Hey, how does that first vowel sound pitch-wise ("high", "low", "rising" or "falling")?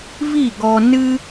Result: falling